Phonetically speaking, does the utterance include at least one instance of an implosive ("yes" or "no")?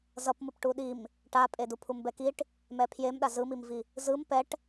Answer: yes